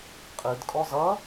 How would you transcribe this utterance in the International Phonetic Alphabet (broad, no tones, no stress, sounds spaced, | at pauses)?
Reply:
qʼ ɨ d kʼ ɔ z ʌ